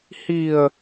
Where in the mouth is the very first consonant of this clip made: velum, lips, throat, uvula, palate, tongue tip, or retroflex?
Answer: throat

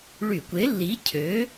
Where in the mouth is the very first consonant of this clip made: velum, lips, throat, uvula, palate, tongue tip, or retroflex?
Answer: retroflex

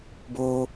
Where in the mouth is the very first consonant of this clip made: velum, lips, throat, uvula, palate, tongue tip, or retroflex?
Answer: lips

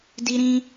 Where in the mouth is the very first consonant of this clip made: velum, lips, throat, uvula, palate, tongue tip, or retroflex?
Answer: tongue tip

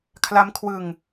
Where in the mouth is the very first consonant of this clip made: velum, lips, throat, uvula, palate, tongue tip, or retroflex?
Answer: velum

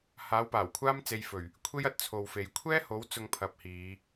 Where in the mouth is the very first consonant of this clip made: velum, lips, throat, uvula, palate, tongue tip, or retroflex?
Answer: throat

